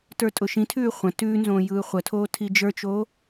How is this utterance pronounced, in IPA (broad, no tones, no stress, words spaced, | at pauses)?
tə˞tʼʊʃĩtʰʉː χʷə̃ tʉːnzõː jɯːχʷətʰoː tʰid͡ʒə˞t͡ʃoː